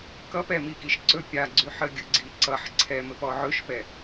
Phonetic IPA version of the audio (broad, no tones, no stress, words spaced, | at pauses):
kʌp ɛmikiʃǀɵ pʲaɡ͡ǀyħə ɡʲɵɡ͡ǀiǀʌħ ǀʰɛmɘp ɔʕɵʃpɛ